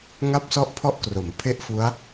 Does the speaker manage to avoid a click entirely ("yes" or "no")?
yes